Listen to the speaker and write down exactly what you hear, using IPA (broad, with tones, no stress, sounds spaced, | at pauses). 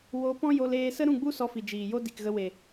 w o˧ p ɔ̃˦ j o˧ l eː˧ s ə˦ ɾ ũ˦˨ ɡ͡b u˦ s ɔ˧ f i˨ d͡ʒ iː˨ j o˦ d i˨ k ɣ ə˧ w e˨